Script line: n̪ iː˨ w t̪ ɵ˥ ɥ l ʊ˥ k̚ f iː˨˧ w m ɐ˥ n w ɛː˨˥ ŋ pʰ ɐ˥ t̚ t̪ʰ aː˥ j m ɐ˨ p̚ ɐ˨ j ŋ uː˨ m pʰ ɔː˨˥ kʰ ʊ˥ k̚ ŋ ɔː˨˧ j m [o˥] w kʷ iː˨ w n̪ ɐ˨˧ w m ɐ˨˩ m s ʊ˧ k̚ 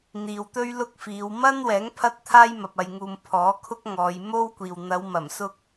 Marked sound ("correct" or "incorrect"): correct